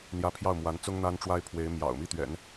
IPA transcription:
n̪ j ä˧˥ pʰ j ɑ˥˩ ʊ̯ m w a˧˥ n t͡s ʊ˥ ŋ n̪ a˥ n ʈ͡ʂ w a˥ ɪ̯ pʰ w e˧˥ ɪ̯ m j ɑ̰˨˩ ʊ̯ m i˥˩ t̪ ɥ ɛ̰˨˩˦ n

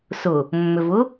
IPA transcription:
s ʊ | mː ʏ v ʊ

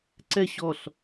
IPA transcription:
ǀ ɛ ɕ ɔ ɬ

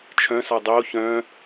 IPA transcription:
t͡ʃʰ œ̃ s ɔ dˤ o ç œ̃

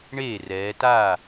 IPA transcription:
ɳ eː˥˩ r ɛː˩˧ t aː˥˩

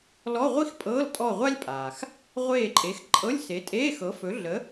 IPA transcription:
l ɔ˧˥˧ ʁʷ i˥ x pʼ ɤː˧˥˧ l tʼ ɔ˦˨ ʁʷ a˥ lʲ pʼ aː˩ x | ʁʷ eː˦˨ ǃʼ e˨˥ x ǃʼ ɤ˧˥˧ lʲ s e˨˥ tʼ eː˧˥˧ x ɤ˨˥ f ɵ˨˥ ɮ ə˨˥

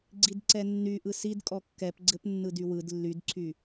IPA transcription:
ɡ͡ǀ i d ǀ ɛ nː y ʔ ɯ s i d kʼ ɔ kː ɛ p ɡ͡ǀ ɘ p nː ɯ d y w ɯ d lː y d ǀʰ y

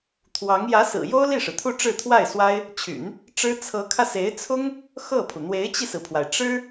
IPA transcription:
t̪ʰ w ɑ˧˥ ŋ j ä˧˥ s ɹ̩˨˩ j o˥ ʊ̯ l i˥˩ ʂ ɻ̩˩ t̪ʰ u˥˧ ʈ͡ʂ ɻ̩˥˧ t̪ʰ w a˥˩ ɪ̯ s w a˥ ɪ̯ | t͡ɕʰ y̰˨˩˦ n | ʈ͡ʂ ɻ̩˥ t͡sʰ ɤ˧˥ kʰ ä˧ s e˧˥ ɪ̯ t͡sʰ ʊ˥ ŋ | x ɤ˥˩ pʰ u˩ n̪ w e˧˥ ɪ̯ t͡ɕ i˧ s ɹ̩˩ pʰ w a˩ ɪ̯ ʈ͡ʂ ɻ̩˥

